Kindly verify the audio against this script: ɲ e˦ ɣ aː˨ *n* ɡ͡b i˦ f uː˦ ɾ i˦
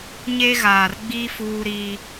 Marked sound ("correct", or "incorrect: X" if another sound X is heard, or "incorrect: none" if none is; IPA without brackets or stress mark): incorrect: r